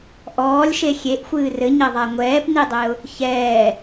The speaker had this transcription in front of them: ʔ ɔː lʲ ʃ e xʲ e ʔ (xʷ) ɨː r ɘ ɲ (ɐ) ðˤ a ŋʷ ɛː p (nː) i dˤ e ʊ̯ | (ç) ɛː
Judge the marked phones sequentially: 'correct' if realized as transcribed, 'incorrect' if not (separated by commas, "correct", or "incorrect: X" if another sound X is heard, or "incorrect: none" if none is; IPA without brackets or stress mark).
correct, correct, incorrect: n, correct